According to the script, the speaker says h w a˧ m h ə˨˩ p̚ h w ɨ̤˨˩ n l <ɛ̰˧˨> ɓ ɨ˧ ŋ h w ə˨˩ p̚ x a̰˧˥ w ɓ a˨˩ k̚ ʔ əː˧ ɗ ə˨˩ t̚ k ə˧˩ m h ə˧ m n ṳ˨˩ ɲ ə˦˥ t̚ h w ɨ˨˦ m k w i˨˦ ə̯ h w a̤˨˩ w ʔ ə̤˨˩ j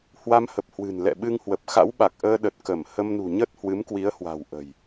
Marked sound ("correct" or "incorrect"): correct